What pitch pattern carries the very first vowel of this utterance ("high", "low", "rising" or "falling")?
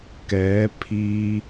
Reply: rising